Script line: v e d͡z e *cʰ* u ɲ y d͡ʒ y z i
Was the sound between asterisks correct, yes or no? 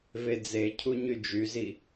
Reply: yes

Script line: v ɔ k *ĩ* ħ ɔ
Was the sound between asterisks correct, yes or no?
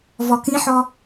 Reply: yes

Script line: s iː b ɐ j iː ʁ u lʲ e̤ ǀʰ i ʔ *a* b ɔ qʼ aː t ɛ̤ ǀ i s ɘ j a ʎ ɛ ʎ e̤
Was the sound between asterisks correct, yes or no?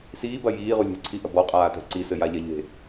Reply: no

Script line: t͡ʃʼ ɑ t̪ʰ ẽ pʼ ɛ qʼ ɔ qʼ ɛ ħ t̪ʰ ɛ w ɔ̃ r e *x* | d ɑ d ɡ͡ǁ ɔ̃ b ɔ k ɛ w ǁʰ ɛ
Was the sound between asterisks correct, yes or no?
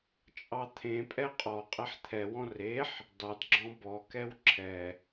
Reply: no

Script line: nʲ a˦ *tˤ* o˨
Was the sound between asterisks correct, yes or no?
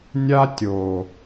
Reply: no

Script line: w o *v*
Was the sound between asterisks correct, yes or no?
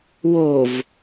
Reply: yes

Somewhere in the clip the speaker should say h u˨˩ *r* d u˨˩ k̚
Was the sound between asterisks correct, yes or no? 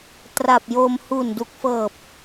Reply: no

